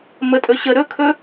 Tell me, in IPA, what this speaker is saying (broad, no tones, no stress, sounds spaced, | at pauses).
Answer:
m ə tʼ ɵ ɕ ə ɾ ɵ kʰ ɵ